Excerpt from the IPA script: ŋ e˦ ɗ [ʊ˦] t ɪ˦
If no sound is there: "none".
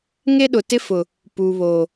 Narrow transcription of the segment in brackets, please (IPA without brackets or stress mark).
ʊ˨